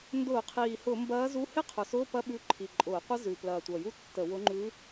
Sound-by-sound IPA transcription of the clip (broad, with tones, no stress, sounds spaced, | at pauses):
n d ʊː˧˩˧ qʰ iː˨˩ h ʊ˧˩˧ m b ɐː˧˥ z u˧˥˧ h e˥ qʰ ʊ˨˩ s ʊː˧˥˧ p ɐ˥ ɓ ʉ˧˥˧ ǃʰ i˨˩ ǃʼ ʊː˧˩˧ qʷ ɐ˥ z ʉ˨˩ p l ɐː˨˩ tʷ ɐ˨˩ j u˥ tː ə˧˩˧ w ʊ˧˥ ŋ͡ǃ ʉ˧˥